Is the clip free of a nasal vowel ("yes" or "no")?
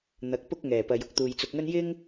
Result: yes